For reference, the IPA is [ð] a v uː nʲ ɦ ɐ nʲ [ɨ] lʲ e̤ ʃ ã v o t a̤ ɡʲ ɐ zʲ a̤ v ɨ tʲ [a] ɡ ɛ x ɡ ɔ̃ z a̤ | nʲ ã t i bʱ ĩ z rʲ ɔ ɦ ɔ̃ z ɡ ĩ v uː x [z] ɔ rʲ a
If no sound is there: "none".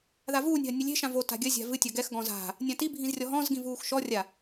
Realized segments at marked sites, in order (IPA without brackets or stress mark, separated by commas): ð, ɨ, ɐ, ʃ